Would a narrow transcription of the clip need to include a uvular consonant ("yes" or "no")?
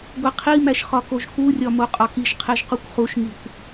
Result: yes